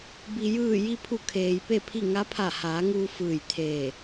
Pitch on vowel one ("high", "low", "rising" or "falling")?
low